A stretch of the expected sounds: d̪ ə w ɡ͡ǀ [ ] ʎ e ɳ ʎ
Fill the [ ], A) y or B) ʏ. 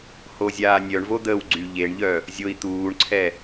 A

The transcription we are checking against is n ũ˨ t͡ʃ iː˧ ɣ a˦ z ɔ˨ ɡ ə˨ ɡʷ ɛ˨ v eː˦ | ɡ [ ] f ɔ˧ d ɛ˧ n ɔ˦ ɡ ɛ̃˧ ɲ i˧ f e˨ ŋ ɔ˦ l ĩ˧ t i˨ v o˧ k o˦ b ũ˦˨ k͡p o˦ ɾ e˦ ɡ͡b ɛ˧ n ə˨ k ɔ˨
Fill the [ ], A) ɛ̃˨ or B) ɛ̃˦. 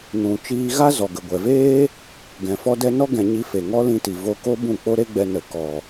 A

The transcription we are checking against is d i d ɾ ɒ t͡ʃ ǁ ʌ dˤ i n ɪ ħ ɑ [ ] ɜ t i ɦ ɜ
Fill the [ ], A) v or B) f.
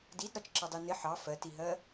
B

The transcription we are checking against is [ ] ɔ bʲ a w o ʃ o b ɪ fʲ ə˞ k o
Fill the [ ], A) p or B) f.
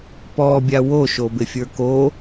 A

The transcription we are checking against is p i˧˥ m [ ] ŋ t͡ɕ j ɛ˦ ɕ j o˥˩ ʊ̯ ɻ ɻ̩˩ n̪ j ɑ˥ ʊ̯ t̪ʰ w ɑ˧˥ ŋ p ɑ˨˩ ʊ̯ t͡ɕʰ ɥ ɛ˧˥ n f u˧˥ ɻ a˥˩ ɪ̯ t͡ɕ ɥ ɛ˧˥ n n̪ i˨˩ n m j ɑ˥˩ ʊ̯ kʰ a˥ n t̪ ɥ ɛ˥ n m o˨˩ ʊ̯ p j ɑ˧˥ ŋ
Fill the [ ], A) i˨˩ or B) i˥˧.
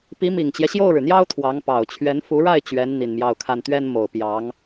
A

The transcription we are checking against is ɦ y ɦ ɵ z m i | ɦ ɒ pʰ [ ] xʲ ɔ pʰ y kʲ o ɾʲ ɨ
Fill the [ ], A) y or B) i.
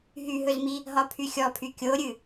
A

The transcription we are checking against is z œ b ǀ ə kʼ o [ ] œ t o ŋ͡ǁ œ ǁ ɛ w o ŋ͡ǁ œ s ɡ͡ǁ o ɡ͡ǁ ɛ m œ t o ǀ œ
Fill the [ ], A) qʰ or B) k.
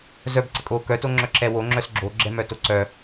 B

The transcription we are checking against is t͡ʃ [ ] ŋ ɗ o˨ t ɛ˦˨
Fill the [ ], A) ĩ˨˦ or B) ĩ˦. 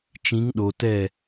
A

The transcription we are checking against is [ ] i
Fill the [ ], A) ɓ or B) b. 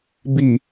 B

